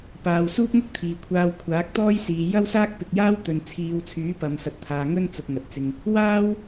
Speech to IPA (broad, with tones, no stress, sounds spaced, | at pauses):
p aː˨ w s uː˥ p̚ ŋ ʊ˥ k̚ t̪ʰ iː˨ kʷʰ aː˧ w kʷʰ aː˨˥ k̚ t̪ ɔː˥ j s iː˨ j ɐ˥ w s aː˥ k̚ p ɪ˨ k̚ j aː˥ w t̪ ɵ˨ n t͡sʰ iː˨˧ w t͡sʰ yː˨˥ p ɐ˨ m s ɐ˨ t̚ t̪ʰ aː˨ ŋ ɵ˥ n t͡s ʊ˨ k̚ ŋ ɐ˨ t̚ t͡s ɪ˧ ŋ | w aː˥ w